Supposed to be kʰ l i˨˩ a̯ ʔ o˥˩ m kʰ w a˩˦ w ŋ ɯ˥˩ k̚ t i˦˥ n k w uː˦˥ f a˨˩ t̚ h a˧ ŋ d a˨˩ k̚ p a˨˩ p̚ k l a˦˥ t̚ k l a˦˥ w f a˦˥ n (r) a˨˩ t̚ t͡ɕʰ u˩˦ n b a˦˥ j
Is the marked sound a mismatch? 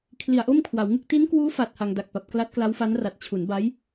no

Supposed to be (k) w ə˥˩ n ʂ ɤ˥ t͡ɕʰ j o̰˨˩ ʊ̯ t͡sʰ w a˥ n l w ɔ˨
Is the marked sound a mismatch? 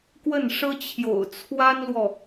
no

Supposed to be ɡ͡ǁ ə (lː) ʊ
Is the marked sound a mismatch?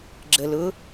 yes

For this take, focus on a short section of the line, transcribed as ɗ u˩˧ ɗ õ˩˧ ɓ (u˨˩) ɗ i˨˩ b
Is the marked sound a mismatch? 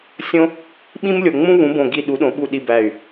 no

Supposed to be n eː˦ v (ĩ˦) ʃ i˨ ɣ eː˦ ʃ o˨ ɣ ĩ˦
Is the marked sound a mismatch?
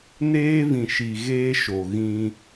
yes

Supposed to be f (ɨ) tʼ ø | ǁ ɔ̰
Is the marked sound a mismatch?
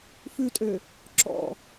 yes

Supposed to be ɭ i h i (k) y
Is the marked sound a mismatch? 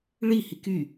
no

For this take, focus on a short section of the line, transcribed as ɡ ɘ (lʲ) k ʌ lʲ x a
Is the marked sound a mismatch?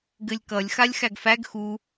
no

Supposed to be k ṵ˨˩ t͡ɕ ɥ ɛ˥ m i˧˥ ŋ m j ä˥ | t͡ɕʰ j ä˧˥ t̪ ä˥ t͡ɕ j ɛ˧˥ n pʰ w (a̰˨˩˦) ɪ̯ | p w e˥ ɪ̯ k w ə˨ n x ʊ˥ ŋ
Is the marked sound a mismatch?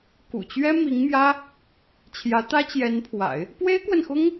no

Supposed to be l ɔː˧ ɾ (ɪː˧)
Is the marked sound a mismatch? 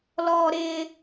no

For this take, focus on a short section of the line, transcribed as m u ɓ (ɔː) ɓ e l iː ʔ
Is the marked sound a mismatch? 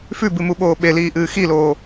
yes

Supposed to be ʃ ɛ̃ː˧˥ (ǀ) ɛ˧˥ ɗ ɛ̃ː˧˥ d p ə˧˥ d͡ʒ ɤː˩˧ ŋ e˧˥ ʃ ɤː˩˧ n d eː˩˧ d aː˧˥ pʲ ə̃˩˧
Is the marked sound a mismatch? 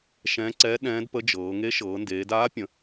no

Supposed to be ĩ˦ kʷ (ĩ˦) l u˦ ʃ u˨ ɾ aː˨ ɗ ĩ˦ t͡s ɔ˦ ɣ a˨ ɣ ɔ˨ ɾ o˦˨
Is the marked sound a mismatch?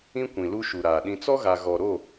yes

